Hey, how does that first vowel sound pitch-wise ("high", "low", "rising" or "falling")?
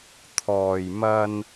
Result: low